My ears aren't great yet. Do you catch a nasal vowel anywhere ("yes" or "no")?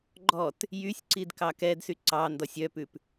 no